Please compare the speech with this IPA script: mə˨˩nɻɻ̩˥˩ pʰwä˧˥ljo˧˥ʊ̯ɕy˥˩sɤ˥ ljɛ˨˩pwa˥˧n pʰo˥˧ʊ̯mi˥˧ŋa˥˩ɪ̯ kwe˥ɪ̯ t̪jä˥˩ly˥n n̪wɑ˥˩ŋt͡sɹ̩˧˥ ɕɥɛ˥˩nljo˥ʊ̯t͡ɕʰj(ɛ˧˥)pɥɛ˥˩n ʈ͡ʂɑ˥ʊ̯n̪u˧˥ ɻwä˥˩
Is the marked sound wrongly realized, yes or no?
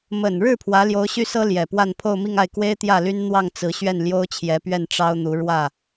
no